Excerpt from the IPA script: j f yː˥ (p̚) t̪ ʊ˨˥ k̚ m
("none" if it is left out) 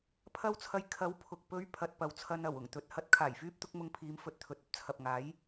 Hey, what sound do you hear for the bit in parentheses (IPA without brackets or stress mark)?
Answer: p̚